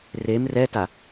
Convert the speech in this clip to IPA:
r e m r ɛ t a

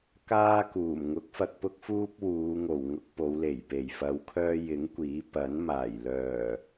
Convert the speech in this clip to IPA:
k aː˥ k uː˨˩ m ŋ ʊ˨˥ k̚ f ɐ˧ k̚ p ʊ˥ k̚ f uː˥ p̚ w uː˨˧ ŋ o˨˩ w ŋ ʊ˧ k̚ p o˨˧ w l e˨˩ j p e˨˩ j f ɐ˨˧ w kʰ œː˧ j ɪ˨˥ ŋ kʷ iː˨˥ p ɐ˨˥ n m aː˨˩ j l œː˨˩

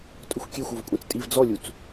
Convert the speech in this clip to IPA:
tʼ ʊ xʷ kʲ e xʷ o v kʷʼ ɛ̃ t͡s tʼ i v d͡z ɔ lʲ u t͡s

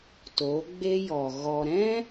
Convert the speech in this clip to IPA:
t o˨˦ ɡ͡b e˦ j ɔ˨ ɣ ɔ˨ ɾ ɛ̃˦

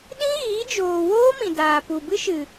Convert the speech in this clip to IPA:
ɗ ĩ˦ ɣ iː˨˦ d͡ʒ oː˨ w oː˦ m ĩ˨ d aː˨ p u˨ b ɨ˦ ʃ ɨ˨

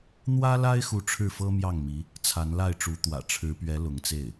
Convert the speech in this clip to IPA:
n̪ w ä˥ l a˥ ɪ̯ x u˧˥ ʈ͡ʂʰ ɻ̩˥˩ f ɤ˥ m j ɑ˥˩ ŋ m i˧˥ | t͡sʰ a˧˥ n l a˥˩ ɪ̯ ʈ͡ʂ u˧˥ t̪ w ä̰˨˩ ʈ͡ʂʰ ɻ̩˧˥ p ɥ ɛ˧˥ l ʊ˧˥ ŋ t͡s e˥˩ ɪ̯

